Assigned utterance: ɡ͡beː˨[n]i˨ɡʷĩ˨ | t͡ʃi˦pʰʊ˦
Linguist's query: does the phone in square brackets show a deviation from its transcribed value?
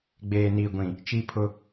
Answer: no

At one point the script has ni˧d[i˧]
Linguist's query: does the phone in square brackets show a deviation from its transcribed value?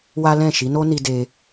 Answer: yes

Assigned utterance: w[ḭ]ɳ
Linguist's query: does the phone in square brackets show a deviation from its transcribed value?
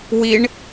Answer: yes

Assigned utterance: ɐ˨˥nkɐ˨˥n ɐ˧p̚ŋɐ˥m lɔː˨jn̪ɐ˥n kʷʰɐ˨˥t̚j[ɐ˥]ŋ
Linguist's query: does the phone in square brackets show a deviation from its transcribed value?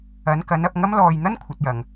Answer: yes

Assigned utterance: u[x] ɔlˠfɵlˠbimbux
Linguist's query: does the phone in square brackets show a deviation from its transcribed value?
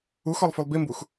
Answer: no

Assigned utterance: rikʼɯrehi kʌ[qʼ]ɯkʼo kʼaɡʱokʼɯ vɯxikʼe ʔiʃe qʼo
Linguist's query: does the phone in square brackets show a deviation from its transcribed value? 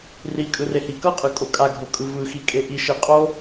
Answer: no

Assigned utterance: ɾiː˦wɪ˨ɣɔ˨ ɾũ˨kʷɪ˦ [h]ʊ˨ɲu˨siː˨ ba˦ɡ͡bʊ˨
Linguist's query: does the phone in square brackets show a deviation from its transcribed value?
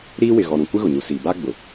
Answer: yes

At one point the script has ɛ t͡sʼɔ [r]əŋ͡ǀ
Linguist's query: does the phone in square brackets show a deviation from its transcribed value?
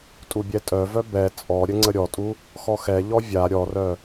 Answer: yes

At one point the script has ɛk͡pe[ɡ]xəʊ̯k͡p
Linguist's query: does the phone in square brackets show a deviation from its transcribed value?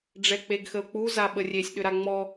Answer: no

